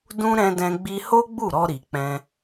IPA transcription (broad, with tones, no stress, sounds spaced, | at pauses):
d ũ˦ ɾ ɛ̃˧ d ɛ̃˧ ɡ͡b i˧ h o˦ ɡ͡b u˦˨ ɾ ɔ˧ ɾ i˨ k͡p ɛ̃˧